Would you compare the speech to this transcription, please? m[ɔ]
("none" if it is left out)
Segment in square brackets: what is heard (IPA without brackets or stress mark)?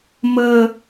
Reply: ə